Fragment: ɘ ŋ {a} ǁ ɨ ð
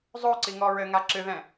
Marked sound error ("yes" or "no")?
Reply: no